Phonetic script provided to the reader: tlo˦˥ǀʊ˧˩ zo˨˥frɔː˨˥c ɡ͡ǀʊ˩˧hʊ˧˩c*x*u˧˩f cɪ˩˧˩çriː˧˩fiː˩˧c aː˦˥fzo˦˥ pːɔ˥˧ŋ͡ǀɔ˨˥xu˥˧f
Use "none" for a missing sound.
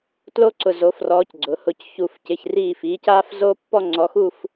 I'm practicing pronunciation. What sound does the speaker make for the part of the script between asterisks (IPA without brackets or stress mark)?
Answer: ç